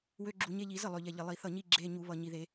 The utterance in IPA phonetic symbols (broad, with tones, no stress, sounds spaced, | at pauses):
w ø˧˥˧ ɡ͡ǁ u˧˩˧ ɲ e˧˥˧ ʎ i˧˩˧ z ə˥˩ lˠ ø˨˩ ʎ ɛ˨˩ ʎ ə˨˩ lˠ i˧˩˧ θ ʌ˥˩ ɲ i˥˧ ɡ͡ǁ e˧˥˧ ɲ u˧˩˧ β ʌ˨˩ ɲ i˨˩ ð e˧˩˧